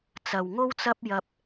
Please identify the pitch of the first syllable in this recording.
low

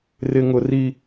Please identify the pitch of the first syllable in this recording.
high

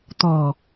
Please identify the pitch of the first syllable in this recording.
low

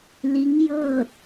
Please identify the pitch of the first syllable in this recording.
rising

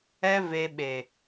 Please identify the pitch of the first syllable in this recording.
high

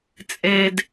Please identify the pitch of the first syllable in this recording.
high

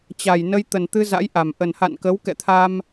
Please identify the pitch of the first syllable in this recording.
low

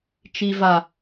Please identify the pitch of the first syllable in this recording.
low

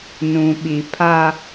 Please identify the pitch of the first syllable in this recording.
low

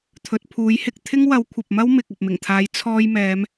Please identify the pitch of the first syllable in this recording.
low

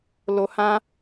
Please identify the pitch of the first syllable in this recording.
low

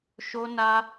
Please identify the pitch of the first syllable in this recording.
high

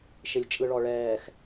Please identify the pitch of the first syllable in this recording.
low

